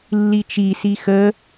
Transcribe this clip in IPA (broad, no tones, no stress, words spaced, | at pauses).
lːit͡ʃisi xə